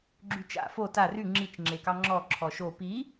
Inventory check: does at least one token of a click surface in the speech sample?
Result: yes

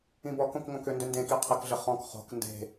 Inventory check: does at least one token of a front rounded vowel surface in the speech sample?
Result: yes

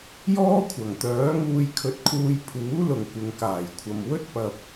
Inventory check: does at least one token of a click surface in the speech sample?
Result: no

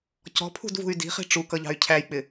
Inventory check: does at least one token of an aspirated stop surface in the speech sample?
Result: yes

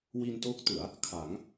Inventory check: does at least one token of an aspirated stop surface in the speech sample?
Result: yes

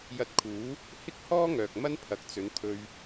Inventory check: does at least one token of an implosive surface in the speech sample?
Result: no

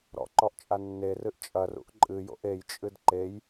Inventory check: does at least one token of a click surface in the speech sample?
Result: yes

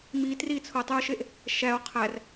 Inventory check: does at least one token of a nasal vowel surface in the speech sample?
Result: no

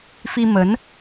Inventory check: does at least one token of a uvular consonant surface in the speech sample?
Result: no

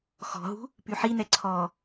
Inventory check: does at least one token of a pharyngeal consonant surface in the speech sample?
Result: yes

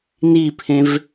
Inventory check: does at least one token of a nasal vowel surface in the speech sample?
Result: yes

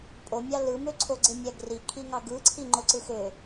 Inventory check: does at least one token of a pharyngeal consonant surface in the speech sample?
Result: no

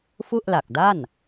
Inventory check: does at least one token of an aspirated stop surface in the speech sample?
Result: no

